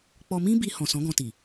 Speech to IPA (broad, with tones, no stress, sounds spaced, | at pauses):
k͡p ɔ˧ m ĩ˦ b i˧ h ɔ̃˨ s ɔ̃˨˦ ɡ ɔ̃˧ t i˨